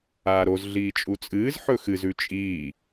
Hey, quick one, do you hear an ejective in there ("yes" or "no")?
yes